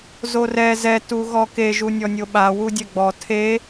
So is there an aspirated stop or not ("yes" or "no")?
yes